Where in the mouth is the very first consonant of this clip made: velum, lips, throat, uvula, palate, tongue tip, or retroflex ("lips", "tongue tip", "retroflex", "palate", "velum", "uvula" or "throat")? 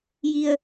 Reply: palate